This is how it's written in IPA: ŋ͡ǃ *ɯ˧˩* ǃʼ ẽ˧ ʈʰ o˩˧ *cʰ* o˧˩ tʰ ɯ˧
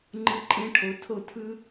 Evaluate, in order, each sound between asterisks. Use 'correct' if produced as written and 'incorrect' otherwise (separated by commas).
correct, incorrect